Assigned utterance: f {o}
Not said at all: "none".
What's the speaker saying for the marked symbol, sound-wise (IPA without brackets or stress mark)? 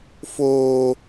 oː